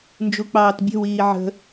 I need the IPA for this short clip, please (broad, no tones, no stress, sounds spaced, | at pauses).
n d͡ʒ u k͡p ɑː t bʲ ə̤ w iː ʕ ə̤